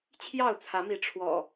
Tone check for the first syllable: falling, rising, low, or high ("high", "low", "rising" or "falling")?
falling